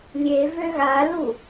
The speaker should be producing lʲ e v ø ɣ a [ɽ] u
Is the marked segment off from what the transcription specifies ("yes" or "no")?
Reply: yes